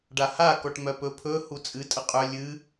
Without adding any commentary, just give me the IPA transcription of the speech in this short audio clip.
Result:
ɖ a h a k ɔ ʈ m œ p ɵ pʰ ɵ h u t͡sʼ ɨ tʼ ə qʼ œ lʲ ɨ

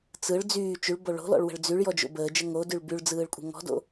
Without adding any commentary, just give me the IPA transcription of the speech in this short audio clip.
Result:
t͡s ɯ ɭ d͡z yː t͡ʃ y ɭ b o ɭ o̤ l ɔ̰ ɭ w ə̤ ɭ d͡z y ɭ j ɔ d͡ʒ o̰ b əː d͡ʒ ə ŋ o d y ɭ b y ɭ d͡z ɯː ɭ kʷʼ ə̤ ŋ ɔ̤ d o̰

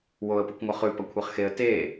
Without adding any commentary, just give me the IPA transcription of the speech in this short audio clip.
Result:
w o ə̯ p ɨ kʷ ŋʷ ɐ χ ʉ p ɐ kʷʰ e χ x e ə̯ t e

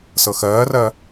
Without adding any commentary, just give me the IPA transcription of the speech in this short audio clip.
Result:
s ɤ x ɜː r ɜ

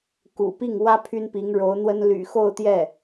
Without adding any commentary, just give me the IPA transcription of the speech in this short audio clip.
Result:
k ṵ˨˩ p i˥˩ ŋ w ä˥ pʰ y˥ n p i˧˥ ŋ ɻ o˧˥ ʊ̯ n̪ w ə˥ n l y̰˨˩ x o˥˧ ʊ̯ t̪ j ɛ˥˩

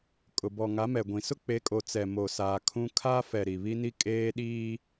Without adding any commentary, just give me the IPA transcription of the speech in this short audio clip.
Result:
kʼ ʊ˨ b ɔ˨ ŋ a˨˦ m ɛ˨ ɡʷ ĩ˨ s ʊ˦ k͡p e˨˦ kʼ o˨ t͡s ɛ˨ m o˨ s aː˨ kʰ ũ˦ kʰ aː˦ f ɛ˨ ɾ i˨ β i˦ n i˦ kʼ eː˦ ɗ iː˦

